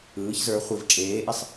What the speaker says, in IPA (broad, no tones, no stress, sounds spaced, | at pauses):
ɯː ç z ə˞ χʷ i v t͡ʃʼ eː ʔ i sˤ